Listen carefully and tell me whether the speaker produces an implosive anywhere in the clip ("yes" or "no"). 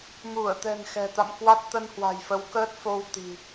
no